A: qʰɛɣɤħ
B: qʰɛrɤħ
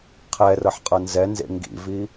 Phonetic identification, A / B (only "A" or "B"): B